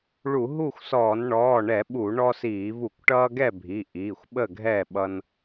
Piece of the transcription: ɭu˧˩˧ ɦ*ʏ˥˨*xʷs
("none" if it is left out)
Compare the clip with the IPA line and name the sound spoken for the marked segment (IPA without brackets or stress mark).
u˥˨